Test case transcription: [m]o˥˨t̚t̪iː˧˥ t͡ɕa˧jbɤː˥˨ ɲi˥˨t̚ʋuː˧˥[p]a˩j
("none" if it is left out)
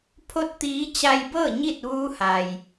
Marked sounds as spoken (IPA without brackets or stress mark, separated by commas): pʰ, h